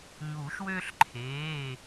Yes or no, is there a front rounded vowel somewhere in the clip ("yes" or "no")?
yes